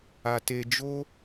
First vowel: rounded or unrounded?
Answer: unrounded